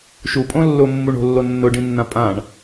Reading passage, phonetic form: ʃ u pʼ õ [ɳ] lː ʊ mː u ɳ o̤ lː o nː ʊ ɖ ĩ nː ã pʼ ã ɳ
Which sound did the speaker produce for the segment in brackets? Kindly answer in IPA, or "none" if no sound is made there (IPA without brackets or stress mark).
none